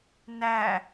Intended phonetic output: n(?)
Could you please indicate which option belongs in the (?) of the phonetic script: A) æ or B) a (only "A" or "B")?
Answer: A